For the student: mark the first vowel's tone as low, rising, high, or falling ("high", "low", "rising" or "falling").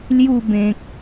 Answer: falling